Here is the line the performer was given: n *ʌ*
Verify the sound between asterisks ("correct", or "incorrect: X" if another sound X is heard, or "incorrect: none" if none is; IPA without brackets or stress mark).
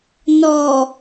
incorrect: ɔ